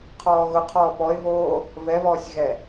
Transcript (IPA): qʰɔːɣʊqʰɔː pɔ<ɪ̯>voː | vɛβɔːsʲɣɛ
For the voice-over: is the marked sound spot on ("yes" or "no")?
yes